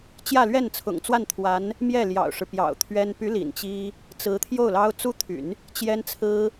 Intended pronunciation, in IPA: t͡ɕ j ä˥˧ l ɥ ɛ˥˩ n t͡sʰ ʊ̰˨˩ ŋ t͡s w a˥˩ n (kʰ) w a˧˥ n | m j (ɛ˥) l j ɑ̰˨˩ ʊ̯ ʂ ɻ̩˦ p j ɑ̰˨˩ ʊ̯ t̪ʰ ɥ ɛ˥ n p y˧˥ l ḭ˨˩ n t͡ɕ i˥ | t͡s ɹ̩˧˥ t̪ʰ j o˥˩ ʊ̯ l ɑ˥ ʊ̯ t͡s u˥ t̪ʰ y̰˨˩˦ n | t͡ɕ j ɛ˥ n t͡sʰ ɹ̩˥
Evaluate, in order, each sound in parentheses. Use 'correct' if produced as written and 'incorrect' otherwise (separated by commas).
incorrect, incorrect